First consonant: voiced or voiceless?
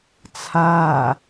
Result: voiceless